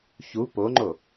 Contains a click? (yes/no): yes